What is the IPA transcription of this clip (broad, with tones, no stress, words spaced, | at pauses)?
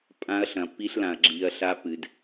pʼã˦ɐ̯ɬɐ̃˨ pi˦ɬlã˨ɐ̯ ɡ͡ǁi˨ɐ̯ɬa˦pɨ˨d